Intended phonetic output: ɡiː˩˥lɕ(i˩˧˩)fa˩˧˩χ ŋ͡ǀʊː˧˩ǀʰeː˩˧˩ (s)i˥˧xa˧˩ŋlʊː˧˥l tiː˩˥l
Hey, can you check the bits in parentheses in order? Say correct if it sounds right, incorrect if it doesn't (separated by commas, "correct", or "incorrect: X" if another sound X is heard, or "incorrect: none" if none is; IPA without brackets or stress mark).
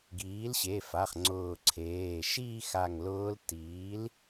incorrect: e˩˧˩, incorrect: ʃ